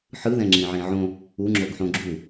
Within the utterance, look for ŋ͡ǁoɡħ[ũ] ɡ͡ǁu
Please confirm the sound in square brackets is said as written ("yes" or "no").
no